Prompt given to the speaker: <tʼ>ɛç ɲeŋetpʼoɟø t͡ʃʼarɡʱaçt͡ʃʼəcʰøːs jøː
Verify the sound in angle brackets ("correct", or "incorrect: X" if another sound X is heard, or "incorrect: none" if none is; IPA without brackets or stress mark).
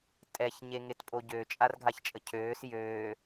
correct